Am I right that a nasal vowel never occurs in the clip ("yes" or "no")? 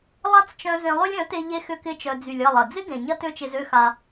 no